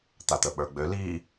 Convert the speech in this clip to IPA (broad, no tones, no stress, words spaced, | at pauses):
t̪at̪əɓə˞ɡ͡bø li